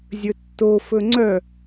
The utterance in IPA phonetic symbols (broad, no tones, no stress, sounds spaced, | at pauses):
zʲ ɵ tː o f ɵ ŋ͡ǀ œ